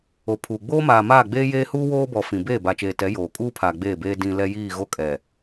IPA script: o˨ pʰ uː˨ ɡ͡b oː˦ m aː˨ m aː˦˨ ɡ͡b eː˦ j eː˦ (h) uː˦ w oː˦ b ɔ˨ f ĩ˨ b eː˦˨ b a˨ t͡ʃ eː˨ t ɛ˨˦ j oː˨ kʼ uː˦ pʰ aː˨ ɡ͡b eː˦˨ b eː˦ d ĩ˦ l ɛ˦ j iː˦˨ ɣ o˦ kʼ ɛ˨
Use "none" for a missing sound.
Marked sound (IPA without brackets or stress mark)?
h